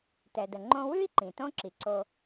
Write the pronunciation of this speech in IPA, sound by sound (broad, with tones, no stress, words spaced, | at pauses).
tɛ˨də˨ ŋ͡ǃõ˦ wʉ˥i̯ǃĩ˩ tõ˦ǁi˩ǀo˨